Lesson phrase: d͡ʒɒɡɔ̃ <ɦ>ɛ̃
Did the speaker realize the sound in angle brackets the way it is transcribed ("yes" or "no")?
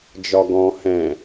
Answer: no